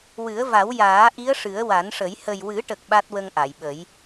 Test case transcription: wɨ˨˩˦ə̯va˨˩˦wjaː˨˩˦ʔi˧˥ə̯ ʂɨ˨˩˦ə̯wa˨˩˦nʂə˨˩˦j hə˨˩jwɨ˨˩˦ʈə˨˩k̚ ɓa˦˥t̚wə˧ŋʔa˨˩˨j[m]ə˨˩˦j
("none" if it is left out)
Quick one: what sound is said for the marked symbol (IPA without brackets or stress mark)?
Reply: ɓ